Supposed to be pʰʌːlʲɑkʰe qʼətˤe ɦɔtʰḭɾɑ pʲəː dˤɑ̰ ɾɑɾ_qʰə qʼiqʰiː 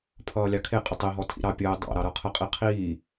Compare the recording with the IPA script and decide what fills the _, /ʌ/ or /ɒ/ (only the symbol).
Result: ʌ